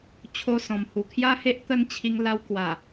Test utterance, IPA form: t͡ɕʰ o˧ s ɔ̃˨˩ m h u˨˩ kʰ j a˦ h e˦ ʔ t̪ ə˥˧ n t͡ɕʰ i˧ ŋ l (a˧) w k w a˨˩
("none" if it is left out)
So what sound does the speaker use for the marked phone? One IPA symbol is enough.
a˧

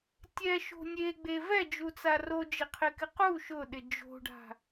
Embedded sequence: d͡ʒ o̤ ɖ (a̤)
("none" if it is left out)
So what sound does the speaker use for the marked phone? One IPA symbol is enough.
a̤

